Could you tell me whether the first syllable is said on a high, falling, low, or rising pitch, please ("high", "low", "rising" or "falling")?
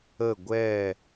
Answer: falling